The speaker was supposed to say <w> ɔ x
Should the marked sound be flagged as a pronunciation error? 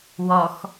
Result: no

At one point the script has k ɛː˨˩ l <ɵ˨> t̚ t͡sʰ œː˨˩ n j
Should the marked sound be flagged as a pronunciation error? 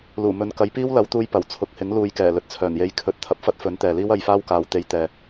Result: no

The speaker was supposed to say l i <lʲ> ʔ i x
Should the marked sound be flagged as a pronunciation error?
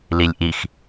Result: no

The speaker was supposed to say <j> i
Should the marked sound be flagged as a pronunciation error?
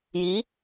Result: no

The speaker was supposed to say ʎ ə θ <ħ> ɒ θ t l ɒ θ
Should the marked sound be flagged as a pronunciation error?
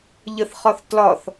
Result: yes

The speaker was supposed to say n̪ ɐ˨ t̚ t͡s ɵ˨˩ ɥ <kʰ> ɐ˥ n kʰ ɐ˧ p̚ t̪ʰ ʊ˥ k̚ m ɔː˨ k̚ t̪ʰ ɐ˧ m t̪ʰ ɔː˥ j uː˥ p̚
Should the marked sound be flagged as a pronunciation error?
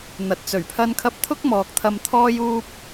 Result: yes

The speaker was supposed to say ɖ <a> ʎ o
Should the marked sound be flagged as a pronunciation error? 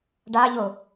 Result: no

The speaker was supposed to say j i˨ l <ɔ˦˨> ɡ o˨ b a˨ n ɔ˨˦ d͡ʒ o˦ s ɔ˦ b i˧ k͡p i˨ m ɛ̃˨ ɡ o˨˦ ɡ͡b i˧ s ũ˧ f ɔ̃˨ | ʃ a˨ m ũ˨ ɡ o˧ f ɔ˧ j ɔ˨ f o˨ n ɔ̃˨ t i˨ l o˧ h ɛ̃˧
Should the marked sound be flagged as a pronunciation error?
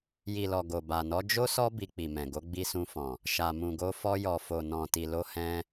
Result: yes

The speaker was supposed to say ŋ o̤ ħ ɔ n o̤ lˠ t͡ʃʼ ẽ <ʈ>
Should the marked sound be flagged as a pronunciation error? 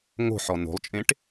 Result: no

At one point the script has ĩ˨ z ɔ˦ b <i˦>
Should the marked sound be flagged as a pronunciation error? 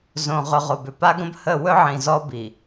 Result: yes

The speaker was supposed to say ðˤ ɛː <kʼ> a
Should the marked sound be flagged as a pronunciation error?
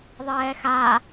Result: yes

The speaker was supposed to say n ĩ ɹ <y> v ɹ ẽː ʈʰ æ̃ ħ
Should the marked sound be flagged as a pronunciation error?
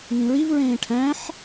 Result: yes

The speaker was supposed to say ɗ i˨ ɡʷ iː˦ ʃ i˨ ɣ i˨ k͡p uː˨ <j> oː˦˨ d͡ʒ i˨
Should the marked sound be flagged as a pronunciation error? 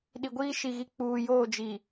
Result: no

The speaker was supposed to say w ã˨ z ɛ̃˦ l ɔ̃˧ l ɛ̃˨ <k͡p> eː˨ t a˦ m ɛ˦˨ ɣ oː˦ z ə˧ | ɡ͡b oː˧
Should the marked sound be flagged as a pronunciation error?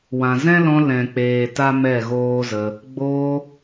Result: no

